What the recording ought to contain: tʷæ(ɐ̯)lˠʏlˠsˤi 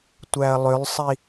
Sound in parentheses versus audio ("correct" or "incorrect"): correct